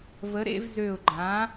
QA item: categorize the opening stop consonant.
click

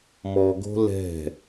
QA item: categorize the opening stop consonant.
plain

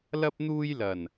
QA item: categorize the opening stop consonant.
plain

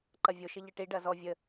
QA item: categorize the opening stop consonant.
click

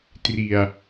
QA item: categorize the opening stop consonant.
plain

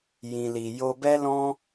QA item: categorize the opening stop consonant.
plain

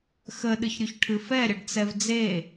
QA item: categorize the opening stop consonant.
implosive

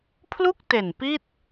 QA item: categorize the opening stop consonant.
aspirated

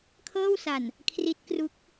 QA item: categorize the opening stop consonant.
aspirated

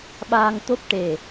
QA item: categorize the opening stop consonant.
implosive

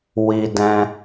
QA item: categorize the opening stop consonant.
plain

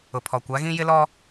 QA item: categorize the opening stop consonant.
aspirated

